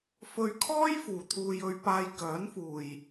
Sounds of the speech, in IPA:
f ɵ˧ ɥ kʰ ɔː˥ j f uː˨ t̪ʰ uː˧ j ɵ˧ ɥ p aː˧ j k œː˨˥ n f uː˨ j

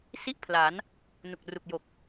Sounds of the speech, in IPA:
s i˥˩ ʔ pʰ l a˩˦ n | n u˨˩ k̚ r u˨˩ k̚ j o˨˩ k̚

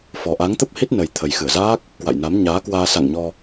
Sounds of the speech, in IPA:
f ɔ˨˩ ʔ a˨˦ ŋ t̪ ə˦˥ p̚ h i˦˥ t̚ n ə˨˩ j t̪ʰ ə˨˩ j x ɨ˧˩ ə̯ z aː˦˥ k̚ | k w a̰˧˨ j n a˨˦ m ɲ aː˨˦ k w aː˧ s a̰˧˨ ŋ ɲ ɔ˧

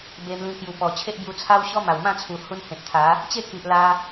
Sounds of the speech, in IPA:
b e˧ m l ĩ˧ k j u˨˩ p ɔ˨˩ t͡ɕʰ e˦ ʔ b j u˧ t͡sʰ a˦ w ɕ ɔ˦ m a˨˩ w m ã˥˧ t͡sʰ u˨˩ h u˧ n h ẽ˨ t̚ t̪ʰ a˨˦ | t͡ɕ e˥˧ k i˨ ʔ l a˧

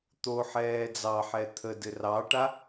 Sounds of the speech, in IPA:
t̪ o ħ ɛː d͡z ɑ ħ ɛ t̪ʰ ə d ɘ r ɑ ʈ a

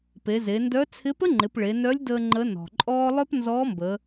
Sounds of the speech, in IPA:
p e˩˧ z e˩˧ n d œ˧˥ t͡sʰ ɪ˧˥ p ə˥ ŋ͡ǃ ɪ˩˧ p ɭ e˩˧ n œ˧˥ lʲ d əː˧ ŋ͡ǃ ə˧˥ n ɔ̤˩ ǃʼ ɔː˥ lˠ œ˥ p n z ɔː˧˥ m b ə˩˧

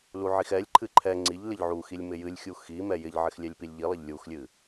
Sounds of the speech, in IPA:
l u ʕ i x ɛ lʲ ǃʰ ɨ ǃʰ ɛ ŋ͡ǀ i ʎ l ɪ ʎ ʕ u x i lʲ m ɪ j ɨ lʲ xʲ u x i m ɛ j ɪ ʎ ʕ ɪ x lʲ ɛ lʲ p i lʲ ʎ i lˠ ɪ ʎ lʲ u x lʲ ɨ

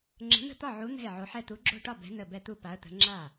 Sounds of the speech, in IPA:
ŋ͡ǁ ə̤˨˥ n̪ ə̤˥˩ t̪ ɒ˥˩ ʕ u˨˥ n̪ ɛ̤˥˩ ɪ̯ ʕ o˨˥ ħ ɛ˥˩ t̪ u˨˥ ɡ͡ǁ o̤˥˩ ʈ ɒ˥˩ b ɛ̤˨˥ n ə˥˩ b ɛ˥˩ t̪ u˥˩ p a˨˥ ə̯ t̪ ə̤˨˥ ŋ͡ǁ a˥˩

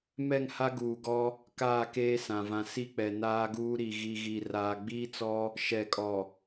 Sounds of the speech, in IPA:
m ɛ˦˨ ŋ h a˦ ɡ uː˨ ɡ ɔ˦ | k aː˦˨ k eː˦ s ã˨ v ã˨ s i˦ k͡p ɛ˨ n aː˦ ɡ uː˦ ɾ i˨ ɣ i˨ ɣ i˨ r aː˨ ɡ͡b iː˦ t͡s ɔ˦ | ʃ ɛ˨ kʼ ɔ˨

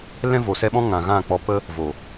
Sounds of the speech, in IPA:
l ɛ̃˦ v o˨ s ɛ˦ ɓ ɔ̃˦ ŋ ã˨ ɣ ã˦˨ k͡p ɔ˧ p ə˦ | v o˨

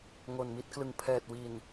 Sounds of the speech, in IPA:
ŋ o˨˩ n m i˦˥ t̚ k l ɯ˨˩ ŋ pʰ ɛː˨˩ t̚ w i˨˩ n

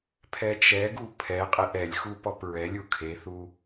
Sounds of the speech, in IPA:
pʰ ɛ t͡ʃ ɛ ɡ u pʰ ɛ qʼ e ʔ ɛ lʲ x u p ɔ p ɹ ɛ lʲ u kʰ e θ u

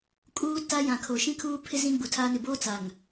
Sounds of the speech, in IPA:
kʼ uː˦ t a˦ j ã˨ kʰ o˨ ʃ ĩ˦ kʰ uː˦ pʰ ɪ˦ z ĩ˦ ɡ͡b u˨ tʰ aː˦ n ɪ˨ b oː˦ t͡s a˨ ŋ

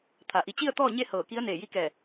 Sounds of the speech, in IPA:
t̪ʰ a˩ ʔ i˧˩ t͡ɕ i˥˨ ə̯ t̪ ɔː˥˨ ɲ e˥˨ h ɤː˧˩ k i˧˥ ə̯ n eː˧˩ j i˧˥ k ɛː˧˩

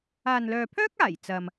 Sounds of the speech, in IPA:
aː˨ n l œː˨ pʰ œː˥ k̚ aː˨˩ j t͡s ɐ˨ m

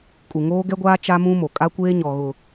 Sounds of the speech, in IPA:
kʼ u˨ ŋ oː˦ ɡ ɛ˦ ɡʷ aː˦ t͡ʃ a˦ m ũ˦ m o˨ kʼ a˦ kʷ eː˦ ɲ ɔ˨ ɣ ʊ˨

